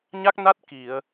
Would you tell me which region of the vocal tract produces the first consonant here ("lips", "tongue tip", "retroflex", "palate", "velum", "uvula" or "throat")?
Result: palate